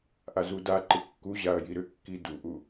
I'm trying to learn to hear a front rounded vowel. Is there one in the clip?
yes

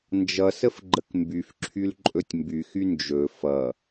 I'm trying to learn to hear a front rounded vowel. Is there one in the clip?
yes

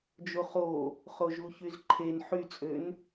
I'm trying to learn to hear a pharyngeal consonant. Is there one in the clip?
yes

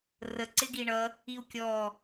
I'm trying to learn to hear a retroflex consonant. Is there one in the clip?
yes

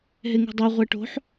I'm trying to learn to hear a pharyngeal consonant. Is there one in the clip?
yes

